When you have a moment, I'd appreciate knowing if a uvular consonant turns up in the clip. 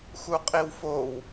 yes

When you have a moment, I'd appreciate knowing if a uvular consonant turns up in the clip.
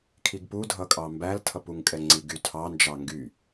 no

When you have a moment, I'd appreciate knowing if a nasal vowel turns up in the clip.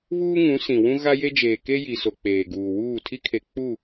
yes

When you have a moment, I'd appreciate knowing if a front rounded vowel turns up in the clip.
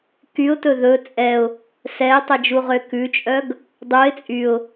yes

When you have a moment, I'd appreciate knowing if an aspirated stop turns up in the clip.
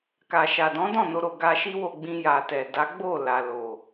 no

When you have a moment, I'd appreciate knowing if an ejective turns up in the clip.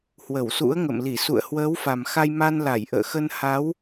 no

